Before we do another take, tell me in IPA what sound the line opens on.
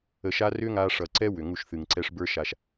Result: ə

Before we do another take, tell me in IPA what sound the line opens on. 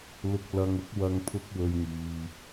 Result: l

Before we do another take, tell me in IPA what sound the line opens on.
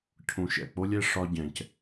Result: cʰ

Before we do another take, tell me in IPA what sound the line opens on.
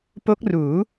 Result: p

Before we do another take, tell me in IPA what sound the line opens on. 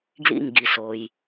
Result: ɡ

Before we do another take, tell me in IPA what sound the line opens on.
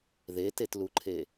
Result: ð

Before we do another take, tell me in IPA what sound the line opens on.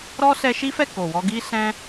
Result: ɾ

